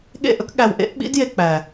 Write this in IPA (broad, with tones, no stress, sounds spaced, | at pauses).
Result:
ɠ ḛ˦˨ ʔ ɵ˦ k ɠ æ˨ w ʔ ḛ˦ ʔ ɓ ḭ˦ d j e˨ k͡p æ˨